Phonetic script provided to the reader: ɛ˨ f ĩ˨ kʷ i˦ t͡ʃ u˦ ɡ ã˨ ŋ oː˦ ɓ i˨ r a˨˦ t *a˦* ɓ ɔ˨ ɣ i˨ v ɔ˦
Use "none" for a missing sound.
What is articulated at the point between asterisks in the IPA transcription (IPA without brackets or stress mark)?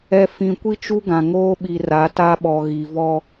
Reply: a˦